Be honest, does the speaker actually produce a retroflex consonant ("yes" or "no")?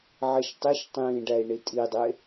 yes